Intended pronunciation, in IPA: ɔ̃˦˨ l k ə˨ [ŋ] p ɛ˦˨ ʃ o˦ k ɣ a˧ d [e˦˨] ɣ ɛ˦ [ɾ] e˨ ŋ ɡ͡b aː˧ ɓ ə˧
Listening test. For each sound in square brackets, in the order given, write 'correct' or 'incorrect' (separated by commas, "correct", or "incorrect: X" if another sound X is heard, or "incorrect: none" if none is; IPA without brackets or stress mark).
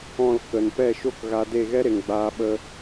incorrect: n, correct, correct